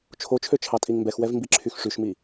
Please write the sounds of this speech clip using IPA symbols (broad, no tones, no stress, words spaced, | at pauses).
t͡ʃʰot͡ʃʰø t͡ʃʰɑtʼiŋmbɛxwɛv mbiǁʰyxʂyʃmi